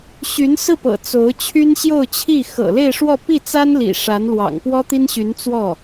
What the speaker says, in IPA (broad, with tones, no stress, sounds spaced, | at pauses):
ɕ y˧˥ n s ɹ̩˥˩ p ɤ̰˨˩ t͡s o˧˥ ʊ̯ t͡ɕʰ y˥ n ɕ j o˥˧ ʊ̯ t͡ɕʰ i˥˩ x ɤ̰˨˩ l e˥˧ ɪ̯ ʂ w ɔ˥˧ p i˥˩ t͡s a˥ n l ḭ˨˩ ʂ a˧˥ n l w ɑ̰˨˩ ŋ p w ɔ˥ t̪ i˥ n ɕ y˧˥ n t͡s w ɔ˥˩